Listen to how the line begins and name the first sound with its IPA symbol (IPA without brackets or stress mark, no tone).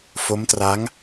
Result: f